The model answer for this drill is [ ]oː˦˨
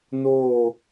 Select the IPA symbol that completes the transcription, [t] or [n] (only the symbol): n